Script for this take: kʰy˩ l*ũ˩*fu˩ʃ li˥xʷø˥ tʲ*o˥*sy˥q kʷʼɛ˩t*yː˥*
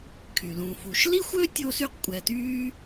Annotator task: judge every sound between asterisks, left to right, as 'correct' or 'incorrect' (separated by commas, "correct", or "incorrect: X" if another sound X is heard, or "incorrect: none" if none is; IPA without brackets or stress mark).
correct, correct, correct